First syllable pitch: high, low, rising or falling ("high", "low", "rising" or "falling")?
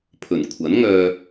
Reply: low